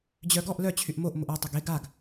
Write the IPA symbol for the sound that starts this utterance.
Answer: d͡ʑ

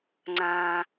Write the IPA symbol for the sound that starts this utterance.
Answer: ŋ͡ǀ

